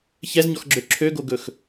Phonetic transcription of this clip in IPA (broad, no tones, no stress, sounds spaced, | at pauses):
ç ɛ z ɲ ɔ x ɡ͡ǁ ø ǁʰ ø ɡ o ɡ ɵ x